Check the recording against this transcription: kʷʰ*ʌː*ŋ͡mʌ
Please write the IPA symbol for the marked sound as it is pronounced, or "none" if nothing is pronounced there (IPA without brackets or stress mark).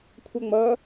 ʌ